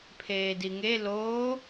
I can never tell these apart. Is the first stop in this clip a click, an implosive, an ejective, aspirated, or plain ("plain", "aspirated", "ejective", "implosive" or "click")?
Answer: aspirated